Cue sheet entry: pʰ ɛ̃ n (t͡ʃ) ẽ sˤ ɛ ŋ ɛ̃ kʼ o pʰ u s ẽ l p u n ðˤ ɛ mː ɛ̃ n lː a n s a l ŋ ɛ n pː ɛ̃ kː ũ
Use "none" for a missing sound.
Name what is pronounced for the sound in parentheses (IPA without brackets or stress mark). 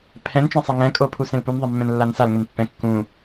t͡ʃ